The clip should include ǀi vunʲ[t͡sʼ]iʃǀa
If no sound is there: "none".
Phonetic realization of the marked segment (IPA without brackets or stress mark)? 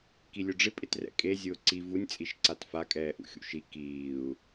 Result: t͡sʼ